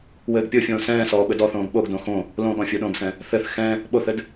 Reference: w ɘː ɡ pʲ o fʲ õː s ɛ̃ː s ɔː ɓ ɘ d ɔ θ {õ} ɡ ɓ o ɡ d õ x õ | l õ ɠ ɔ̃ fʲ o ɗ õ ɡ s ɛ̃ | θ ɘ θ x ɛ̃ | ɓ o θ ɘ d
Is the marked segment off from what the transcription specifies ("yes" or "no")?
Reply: yes